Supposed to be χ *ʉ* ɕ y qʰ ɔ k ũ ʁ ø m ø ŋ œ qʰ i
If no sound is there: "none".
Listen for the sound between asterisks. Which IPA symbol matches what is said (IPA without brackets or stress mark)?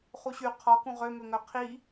u